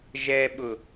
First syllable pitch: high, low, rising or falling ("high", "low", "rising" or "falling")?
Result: low